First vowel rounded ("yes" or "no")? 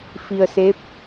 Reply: no